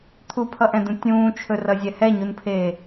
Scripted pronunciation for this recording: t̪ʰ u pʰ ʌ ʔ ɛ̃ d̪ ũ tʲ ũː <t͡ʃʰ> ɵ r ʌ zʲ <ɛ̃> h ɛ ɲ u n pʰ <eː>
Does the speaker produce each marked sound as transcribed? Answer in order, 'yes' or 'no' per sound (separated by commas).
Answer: yes, no, yes